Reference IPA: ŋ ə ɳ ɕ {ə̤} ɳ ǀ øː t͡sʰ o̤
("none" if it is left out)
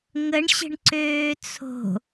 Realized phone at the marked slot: ə̤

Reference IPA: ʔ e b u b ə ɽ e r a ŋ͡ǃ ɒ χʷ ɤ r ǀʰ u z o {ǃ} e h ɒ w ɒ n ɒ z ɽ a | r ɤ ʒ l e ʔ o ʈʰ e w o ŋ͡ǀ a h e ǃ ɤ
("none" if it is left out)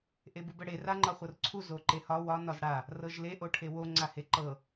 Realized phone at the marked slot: ǃ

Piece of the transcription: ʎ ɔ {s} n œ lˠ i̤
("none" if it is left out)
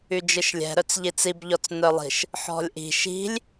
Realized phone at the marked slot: t͡s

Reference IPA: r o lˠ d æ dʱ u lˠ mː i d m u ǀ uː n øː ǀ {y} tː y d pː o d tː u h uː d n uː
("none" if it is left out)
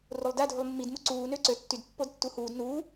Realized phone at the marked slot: ø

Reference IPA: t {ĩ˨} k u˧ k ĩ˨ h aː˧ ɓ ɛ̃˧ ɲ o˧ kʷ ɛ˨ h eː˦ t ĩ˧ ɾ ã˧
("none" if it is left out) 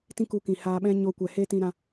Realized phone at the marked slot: ĩ˦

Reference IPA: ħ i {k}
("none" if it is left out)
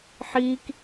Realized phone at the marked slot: k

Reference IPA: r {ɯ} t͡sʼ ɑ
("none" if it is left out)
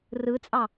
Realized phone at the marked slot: ɯ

